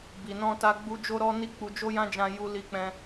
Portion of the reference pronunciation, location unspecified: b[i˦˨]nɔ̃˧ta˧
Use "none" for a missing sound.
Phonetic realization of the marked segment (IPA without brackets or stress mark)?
i˨